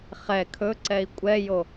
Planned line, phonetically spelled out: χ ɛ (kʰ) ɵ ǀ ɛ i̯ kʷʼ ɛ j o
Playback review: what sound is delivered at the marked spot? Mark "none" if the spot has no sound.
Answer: kʰ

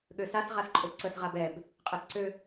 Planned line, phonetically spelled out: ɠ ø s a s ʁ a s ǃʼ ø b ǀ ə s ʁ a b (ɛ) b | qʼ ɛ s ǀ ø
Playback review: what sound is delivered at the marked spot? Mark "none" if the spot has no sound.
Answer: ɛ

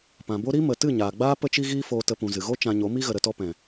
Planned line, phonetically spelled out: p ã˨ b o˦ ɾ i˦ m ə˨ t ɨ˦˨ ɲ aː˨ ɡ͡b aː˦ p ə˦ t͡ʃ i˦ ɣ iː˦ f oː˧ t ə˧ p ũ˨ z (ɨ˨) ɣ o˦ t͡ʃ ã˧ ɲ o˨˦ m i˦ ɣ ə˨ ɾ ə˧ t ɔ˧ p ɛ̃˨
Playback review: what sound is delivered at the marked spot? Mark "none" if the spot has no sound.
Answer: ɨ˨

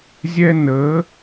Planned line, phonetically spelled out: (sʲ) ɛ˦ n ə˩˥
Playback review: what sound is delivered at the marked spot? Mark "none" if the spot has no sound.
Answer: zʲ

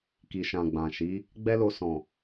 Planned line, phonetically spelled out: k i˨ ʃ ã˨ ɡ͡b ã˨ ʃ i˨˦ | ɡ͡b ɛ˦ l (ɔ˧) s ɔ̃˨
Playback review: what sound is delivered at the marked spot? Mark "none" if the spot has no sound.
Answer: o˧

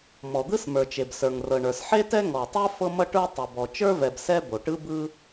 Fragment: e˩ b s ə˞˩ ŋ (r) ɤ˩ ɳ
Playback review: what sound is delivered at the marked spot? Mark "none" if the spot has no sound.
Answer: r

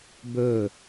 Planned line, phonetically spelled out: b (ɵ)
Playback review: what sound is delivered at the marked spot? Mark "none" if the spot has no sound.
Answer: ɵ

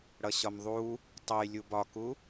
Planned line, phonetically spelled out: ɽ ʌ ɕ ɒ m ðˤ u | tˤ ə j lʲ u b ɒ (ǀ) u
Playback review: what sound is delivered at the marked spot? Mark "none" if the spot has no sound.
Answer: k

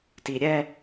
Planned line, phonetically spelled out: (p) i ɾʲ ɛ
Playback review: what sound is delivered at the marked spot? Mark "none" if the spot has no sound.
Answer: t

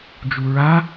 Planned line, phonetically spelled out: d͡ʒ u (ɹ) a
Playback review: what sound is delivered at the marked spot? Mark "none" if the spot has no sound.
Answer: ɹ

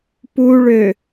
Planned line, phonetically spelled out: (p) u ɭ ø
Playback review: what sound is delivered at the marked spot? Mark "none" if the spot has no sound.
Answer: p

